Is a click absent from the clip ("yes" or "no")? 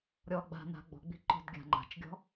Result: no